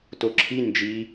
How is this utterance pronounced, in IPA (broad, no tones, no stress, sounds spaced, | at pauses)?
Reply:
t o ǁʰ i n d͡ʒ i